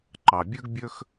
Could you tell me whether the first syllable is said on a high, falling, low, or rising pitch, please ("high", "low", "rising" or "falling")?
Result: low